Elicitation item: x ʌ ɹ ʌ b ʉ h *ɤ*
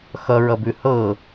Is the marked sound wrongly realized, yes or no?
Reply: no